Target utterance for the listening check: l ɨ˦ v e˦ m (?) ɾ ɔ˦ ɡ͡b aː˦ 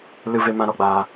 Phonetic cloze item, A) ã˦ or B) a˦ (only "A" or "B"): A